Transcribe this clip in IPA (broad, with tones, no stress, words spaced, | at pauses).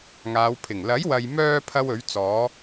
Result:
ŋaː˨˧wpʰɪ˨˩ŋ lɐ˨˥jwɐ˨j mœː˧ pʰɐ˥w ɵ˨˥ɥt͡sɔː˨˥